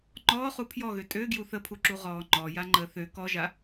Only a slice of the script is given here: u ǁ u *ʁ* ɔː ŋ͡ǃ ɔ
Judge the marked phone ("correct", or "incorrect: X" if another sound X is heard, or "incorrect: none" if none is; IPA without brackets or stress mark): correct